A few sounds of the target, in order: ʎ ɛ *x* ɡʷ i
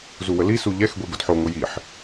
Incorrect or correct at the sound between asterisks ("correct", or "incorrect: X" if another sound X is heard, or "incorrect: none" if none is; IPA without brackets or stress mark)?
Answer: correct